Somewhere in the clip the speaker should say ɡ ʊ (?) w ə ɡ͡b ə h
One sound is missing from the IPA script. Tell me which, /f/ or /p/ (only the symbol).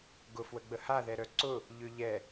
f